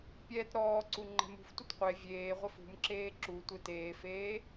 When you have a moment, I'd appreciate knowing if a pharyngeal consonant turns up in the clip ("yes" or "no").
no